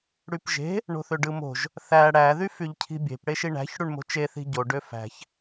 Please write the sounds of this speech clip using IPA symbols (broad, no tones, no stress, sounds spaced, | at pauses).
ɽ y p ʒ e̤ | ɳ o̤ θ ø ɖ ɯ m o̤ ʒ | θ æ ɽ æ ð y f y ʎ cʰ i̤ bʲ e̤ p ɽ e ʃ i ɳ æ̤ ç ɽ u ɳ m o̤ t͡ʃ e θ i̤ ɟ o ɖ ø f æ̤ ç